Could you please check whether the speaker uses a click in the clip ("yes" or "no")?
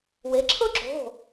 yes